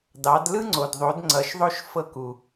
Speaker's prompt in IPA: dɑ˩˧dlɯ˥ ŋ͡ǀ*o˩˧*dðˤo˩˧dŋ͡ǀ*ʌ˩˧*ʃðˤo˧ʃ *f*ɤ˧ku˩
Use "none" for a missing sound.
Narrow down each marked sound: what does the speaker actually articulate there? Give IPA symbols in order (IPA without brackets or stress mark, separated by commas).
o˩, ʌ˩˧, f